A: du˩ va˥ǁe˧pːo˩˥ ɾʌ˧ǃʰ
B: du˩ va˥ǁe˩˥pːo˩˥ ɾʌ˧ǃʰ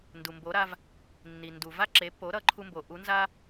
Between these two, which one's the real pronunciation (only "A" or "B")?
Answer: B